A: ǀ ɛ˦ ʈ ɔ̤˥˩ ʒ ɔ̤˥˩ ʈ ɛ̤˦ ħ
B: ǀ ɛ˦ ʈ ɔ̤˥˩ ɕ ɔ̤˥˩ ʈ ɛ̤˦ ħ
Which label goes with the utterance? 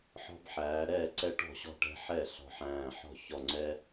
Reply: B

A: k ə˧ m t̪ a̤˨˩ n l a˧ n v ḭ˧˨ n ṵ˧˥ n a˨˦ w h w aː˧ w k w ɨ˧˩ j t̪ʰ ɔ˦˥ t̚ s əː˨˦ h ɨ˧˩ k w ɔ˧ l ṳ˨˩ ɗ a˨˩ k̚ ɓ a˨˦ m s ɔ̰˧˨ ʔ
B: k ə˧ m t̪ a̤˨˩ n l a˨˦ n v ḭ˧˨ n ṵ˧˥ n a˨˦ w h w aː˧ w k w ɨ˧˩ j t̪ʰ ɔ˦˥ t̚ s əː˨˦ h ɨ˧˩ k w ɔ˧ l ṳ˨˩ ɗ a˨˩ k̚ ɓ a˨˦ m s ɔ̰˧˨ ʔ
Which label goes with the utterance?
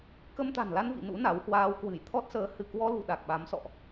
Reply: A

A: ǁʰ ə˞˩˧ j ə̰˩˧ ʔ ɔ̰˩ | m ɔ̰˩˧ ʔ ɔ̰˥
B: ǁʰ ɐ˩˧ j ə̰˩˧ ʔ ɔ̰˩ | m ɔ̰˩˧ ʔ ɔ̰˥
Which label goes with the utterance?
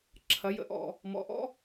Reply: B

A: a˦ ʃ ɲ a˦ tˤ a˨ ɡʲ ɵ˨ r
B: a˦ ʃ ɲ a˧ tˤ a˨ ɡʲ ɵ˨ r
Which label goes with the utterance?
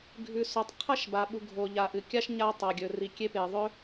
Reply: B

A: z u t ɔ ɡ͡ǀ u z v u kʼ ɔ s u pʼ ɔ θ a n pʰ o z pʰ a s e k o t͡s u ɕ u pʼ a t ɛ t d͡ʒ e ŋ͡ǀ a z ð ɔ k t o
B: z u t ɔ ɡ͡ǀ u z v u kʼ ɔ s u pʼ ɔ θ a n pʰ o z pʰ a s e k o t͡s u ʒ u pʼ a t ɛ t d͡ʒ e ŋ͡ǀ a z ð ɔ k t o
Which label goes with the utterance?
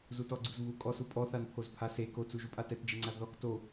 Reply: B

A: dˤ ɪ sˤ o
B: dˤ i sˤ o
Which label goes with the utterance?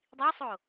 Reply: B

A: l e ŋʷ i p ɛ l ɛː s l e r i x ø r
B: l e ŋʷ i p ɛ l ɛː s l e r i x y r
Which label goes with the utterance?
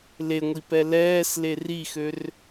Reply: A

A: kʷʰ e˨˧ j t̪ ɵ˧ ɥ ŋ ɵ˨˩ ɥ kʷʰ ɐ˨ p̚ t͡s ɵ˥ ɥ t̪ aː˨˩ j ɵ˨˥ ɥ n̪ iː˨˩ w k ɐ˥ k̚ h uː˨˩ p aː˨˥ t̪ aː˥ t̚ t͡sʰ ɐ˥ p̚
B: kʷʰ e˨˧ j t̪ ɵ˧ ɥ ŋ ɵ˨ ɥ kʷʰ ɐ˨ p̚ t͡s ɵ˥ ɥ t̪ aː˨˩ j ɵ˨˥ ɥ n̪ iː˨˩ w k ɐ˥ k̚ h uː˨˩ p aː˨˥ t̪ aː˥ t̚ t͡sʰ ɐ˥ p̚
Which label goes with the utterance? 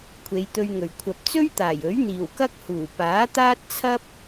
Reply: A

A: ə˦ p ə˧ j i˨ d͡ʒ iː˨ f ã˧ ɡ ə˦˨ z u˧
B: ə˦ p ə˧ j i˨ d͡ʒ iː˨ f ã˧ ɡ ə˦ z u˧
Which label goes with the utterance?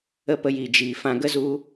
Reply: B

